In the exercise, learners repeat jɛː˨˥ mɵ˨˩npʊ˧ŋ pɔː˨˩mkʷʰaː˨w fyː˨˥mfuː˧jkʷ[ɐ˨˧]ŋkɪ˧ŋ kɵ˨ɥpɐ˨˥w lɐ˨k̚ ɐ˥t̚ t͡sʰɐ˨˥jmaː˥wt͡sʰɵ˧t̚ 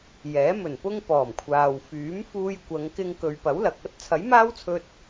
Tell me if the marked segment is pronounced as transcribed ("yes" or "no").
yes